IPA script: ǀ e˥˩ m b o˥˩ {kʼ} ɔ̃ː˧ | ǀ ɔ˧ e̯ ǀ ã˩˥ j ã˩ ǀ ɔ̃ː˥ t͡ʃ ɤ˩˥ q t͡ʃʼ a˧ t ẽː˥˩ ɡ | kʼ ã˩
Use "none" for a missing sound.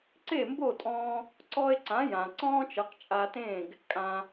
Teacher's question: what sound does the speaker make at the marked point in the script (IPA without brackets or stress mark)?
tʼ